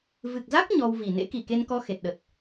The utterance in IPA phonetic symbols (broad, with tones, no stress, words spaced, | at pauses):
vɨ˨˩k̚za˦˥k̚ ɲɔ˧wvi˨˩ nḛ˧˥ki˨˩ke˧nkɔ˧ xe˨˩t̚ɗə˨˩t̚